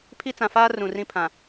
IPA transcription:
pʰ i˦ t͡s ã˨ f aː˦ r ũ˨ r ĩ˦ pʰ ã˨

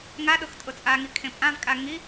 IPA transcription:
ŋ a ɗ ʊ x tʼ ʊ t͡sʼ a ŋ i kʰ ẽ pʼ ã v kʼ a ŋ i

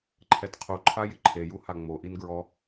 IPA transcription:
ǃʰ ɛ t qʰ u ǃʰ a j ɪ ǃʰ e j u h a ŋ͡m o ʔ i n ɡ ɹ ɔ

